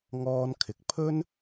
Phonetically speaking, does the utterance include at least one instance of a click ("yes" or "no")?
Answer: no